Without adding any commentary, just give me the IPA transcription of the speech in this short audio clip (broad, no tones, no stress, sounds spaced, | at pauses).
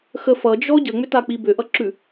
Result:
x ə f ʌ d͡ʒ ɔ ɟ ə ŋ͡m ʏ t a k͡p i b ʏ ʔ ʌ ǁ ʉ